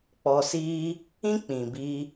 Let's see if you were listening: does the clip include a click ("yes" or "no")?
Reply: no